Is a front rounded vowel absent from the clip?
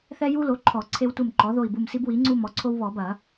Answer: yes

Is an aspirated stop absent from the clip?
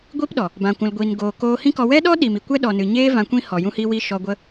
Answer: yes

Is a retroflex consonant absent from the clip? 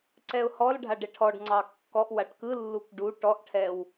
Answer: no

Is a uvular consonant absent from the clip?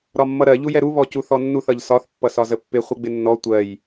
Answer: no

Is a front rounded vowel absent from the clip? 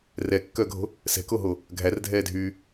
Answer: no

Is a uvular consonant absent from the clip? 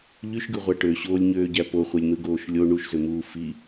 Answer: no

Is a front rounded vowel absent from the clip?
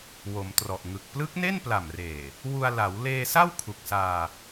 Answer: yes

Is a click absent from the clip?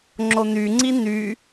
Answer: no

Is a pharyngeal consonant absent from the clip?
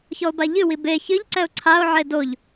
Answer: no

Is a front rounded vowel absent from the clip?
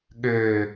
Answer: no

